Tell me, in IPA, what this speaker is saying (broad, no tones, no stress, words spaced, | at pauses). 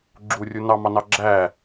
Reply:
ɡ͡ǁurʲu nɑmɑnɑ ɡ͡ǁæ